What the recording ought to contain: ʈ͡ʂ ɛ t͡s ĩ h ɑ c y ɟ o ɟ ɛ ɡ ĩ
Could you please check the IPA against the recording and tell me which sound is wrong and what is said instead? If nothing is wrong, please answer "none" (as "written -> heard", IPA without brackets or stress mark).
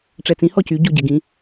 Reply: ɑ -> ɔ